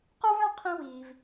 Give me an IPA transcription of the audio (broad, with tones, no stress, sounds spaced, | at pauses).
q ə˞˦ v œ̃˦ qʰ ĩ˦ w iː˩ v